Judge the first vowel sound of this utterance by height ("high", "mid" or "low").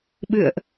high